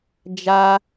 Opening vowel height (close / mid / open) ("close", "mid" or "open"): open